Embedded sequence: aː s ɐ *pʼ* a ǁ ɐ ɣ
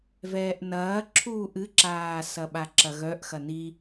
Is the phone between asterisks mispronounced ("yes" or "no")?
yes